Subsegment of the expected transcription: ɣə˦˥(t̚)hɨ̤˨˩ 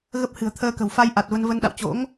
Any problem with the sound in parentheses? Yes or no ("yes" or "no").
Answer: yes